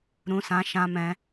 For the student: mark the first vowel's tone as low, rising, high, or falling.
high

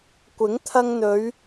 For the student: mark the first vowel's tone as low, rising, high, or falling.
rising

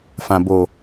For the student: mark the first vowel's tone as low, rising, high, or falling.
low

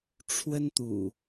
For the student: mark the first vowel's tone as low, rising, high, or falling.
high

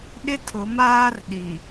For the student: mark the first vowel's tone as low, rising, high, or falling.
high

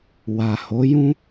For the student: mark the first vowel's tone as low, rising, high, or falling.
low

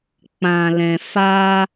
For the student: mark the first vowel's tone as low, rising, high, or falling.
low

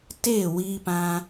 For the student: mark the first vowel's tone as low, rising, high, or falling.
falling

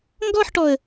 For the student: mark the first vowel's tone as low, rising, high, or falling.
falling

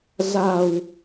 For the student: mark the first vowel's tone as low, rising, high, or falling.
low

